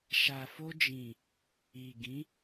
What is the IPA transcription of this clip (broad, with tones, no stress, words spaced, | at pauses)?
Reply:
ʃa˨fo˧d͡ʒĩ˨ | i˨ɡĩ˨˦